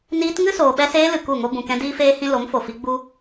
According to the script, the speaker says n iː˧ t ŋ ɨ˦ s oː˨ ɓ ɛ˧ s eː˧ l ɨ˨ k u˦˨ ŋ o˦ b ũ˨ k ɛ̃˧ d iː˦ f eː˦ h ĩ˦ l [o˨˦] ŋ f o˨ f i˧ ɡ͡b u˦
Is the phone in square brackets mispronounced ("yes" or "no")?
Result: no